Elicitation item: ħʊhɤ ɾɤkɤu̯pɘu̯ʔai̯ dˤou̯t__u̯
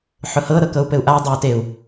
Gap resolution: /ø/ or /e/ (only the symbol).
e